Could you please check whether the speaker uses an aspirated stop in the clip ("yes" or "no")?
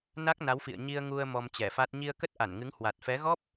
no